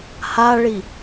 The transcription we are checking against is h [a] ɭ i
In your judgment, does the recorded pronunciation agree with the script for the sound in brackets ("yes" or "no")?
yes